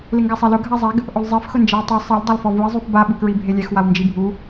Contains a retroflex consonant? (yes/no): no